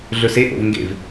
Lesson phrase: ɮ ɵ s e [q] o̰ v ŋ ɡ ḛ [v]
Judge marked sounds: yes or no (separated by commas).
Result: no, yes